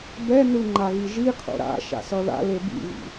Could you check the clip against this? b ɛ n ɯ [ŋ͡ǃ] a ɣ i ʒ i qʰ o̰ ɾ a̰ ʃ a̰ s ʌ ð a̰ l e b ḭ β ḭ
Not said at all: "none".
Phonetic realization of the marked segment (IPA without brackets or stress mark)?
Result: ŋ͡ǃ